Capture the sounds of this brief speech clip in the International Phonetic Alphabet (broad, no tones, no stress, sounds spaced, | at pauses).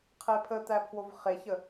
qʰ e pʰ ə t̪ æ pʰ w o v χ e ç ə